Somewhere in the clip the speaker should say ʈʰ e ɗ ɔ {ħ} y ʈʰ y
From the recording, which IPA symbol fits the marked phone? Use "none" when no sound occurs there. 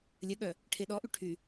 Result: ʔ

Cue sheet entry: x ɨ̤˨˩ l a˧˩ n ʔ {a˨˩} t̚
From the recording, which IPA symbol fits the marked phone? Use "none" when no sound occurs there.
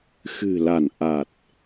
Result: a˨˩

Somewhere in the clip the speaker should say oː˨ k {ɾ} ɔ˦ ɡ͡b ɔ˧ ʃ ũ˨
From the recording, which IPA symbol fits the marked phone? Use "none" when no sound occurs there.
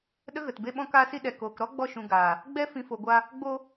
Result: ɾ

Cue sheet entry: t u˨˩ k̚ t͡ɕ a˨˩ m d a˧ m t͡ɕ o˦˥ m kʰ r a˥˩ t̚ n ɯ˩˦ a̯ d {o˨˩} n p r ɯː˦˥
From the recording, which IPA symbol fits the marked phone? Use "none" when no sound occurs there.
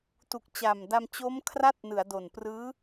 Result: o˨˩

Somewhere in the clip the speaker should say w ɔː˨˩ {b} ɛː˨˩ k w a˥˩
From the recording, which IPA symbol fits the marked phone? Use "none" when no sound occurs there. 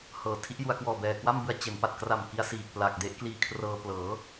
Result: b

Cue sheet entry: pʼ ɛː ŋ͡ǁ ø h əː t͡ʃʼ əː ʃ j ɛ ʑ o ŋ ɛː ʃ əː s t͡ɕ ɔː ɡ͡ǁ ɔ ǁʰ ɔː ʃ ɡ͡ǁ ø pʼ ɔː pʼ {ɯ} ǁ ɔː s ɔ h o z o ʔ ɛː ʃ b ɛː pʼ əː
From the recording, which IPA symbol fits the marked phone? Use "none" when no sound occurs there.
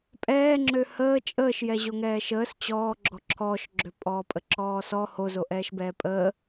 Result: ə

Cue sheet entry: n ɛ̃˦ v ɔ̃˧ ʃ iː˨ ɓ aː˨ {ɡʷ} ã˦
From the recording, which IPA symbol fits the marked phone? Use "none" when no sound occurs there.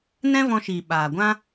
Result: ɡʷ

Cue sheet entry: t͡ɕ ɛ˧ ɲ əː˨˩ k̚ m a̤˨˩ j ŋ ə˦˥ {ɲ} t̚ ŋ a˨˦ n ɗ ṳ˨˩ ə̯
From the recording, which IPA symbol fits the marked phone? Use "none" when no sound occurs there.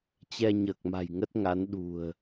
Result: none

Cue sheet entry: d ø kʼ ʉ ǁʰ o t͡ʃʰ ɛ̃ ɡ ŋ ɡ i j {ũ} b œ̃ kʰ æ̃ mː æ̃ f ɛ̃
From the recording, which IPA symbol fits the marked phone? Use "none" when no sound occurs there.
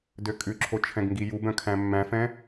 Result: u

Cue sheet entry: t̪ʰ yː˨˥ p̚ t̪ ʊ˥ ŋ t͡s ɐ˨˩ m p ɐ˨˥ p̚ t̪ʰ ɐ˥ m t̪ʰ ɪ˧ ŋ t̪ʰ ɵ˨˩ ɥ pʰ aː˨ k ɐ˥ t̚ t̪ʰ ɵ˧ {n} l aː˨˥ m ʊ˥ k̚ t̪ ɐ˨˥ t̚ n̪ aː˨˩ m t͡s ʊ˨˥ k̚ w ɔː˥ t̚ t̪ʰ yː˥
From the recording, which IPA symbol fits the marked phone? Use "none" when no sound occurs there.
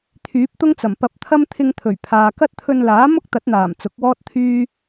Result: n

